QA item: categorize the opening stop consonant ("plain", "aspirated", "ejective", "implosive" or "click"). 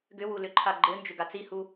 plain